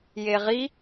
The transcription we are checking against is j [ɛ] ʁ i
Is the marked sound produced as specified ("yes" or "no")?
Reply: no